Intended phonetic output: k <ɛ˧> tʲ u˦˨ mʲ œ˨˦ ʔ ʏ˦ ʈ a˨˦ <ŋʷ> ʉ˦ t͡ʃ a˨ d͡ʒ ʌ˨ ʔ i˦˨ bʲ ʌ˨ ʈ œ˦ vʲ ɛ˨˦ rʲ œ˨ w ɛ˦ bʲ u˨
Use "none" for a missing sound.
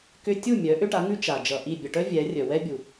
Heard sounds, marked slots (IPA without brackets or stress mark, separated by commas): ʏ˧, ŋ